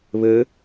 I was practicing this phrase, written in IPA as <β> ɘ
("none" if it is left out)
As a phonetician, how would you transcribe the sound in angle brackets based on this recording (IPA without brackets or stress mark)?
β